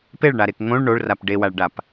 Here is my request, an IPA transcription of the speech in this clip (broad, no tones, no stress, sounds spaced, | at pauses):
p e ɭ ɳ a ɾ e k ŋ õ ɭ ɳ o ɭ r a p ɖ e w a ɭ ɖ a p